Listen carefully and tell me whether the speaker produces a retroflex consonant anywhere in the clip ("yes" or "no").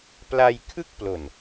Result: no